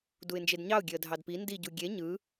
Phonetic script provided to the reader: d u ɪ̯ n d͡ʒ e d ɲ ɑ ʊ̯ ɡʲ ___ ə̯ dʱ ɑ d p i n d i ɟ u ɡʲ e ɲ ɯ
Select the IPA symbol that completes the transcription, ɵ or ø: ø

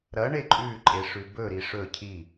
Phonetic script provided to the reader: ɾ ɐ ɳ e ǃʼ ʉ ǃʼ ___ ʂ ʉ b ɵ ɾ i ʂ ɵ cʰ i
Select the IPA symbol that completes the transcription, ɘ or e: e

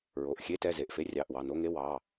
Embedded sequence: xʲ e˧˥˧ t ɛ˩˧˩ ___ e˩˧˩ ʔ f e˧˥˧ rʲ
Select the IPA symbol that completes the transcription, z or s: z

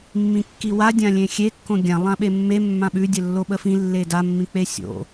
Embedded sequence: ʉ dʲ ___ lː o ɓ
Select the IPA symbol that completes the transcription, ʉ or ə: ə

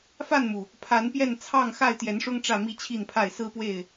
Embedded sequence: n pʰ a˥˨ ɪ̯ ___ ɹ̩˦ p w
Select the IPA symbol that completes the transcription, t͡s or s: s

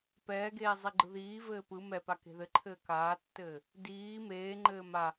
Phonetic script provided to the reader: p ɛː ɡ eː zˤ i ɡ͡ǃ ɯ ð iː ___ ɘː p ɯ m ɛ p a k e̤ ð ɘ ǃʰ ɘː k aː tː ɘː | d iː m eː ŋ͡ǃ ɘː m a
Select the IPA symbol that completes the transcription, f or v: v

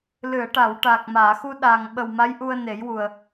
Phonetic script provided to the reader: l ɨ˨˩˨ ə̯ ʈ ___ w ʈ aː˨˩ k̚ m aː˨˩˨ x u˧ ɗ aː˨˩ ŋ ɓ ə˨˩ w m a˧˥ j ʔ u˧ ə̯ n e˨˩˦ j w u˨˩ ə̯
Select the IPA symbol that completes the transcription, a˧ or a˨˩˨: a˨˩˨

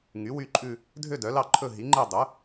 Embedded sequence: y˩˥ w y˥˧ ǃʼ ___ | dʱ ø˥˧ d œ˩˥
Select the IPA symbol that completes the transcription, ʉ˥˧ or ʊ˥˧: ʉ˥˧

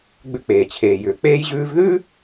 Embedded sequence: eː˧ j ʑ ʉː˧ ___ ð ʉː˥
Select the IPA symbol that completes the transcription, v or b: v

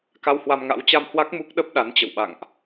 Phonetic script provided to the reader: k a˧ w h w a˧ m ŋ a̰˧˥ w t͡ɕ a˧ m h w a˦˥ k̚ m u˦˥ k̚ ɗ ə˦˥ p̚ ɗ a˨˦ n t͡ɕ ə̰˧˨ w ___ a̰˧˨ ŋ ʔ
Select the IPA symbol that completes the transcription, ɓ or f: ɓ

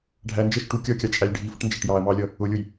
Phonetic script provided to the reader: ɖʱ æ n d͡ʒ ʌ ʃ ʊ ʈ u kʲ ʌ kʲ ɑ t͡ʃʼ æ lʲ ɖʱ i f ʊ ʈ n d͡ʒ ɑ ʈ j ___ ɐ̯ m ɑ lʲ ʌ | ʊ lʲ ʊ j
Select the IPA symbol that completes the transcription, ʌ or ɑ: ɑ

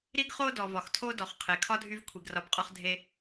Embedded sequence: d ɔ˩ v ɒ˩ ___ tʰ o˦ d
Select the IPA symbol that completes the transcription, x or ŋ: x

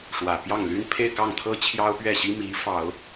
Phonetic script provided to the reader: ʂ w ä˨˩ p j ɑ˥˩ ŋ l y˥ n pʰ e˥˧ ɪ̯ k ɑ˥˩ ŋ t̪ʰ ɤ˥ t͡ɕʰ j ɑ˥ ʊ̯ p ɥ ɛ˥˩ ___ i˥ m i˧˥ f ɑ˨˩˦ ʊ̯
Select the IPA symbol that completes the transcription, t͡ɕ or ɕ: ɕ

